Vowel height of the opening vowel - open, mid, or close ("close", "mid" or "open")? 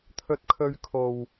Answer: mid